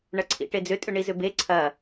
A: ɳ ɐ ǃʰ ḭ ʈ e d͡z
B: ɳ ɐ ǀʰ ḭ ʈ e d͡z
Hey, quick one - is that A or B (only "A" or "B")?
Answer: B